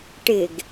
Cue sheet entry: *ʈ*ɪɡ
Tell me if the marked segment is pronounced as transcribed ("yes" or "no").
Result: yes